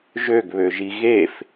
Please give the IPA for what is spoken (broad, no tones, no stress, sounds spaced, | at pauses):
ʒ ø ɡ β ø ʒ i ɣ e f